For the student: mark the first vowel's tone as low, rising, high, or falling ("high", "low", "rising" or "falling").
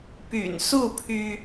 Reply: low